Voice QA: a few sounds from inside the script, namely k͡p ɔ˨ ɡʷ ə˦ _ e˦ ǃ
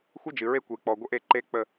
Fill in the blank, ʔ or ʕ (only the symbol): ʔ